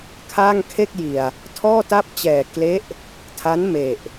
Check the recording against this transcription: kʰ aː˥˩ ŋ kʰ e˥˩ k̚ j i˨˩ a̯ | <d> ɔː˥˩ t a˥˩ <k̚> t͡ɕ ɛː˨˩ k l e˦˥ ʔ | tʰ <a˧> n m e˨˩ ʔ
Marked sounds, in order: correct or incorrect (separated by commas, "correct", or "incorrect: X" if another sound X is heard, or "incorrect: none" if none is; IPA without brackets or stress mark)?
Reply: incorrect: tʰ, incorrect: p̚, incorrect: a˦˥